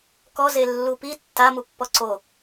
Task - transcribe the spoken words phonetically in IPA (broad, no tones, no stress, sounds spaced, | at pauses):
k ɔ z e lː u p i tː a m u pː ɔ ǀ o